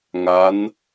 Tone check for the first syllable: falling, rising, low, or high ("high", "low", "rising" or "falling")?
rising